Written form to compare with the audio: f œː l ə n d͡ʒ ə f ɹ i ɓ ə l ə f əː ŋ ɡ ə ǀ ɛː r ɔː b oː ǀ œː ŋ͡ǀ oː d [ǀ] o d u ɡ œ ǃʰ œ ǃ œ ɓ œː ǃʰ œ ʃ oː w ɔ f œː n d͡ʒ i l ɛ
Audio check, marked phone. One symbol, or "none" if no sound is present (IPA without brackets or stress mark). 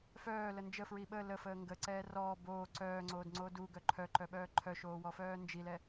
ŋ͡ǀ